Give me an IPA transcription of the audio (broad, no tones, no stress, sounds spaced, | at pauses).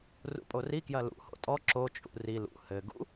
r ṵ pʼ o r i k j ɐ l ṵ h o̰ tʼ ɔ ǁ o t͡ʃʼ ṵ r i l ṵ h ɘ ɡ ṵ